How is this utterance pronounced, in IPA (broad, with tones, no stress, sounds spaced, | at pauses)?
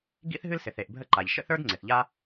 ɡ ḭ˥ θ ɦ ɨ˥ l s ɪ˩ θ e˩ ʔ bʱ ə˥ ǃ a˩ ʎ ʃ ə̰˥ θ ə˞˥ d ŋ͡ǀ ɪ˩ θ ʎ a˥